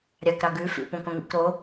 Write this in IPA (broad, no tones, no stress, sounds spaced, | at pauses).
ɾʲ ɑ k ɾ ɑ ɡ ʉ f ḭ p õ k õ ŋ ḭ k ɾ o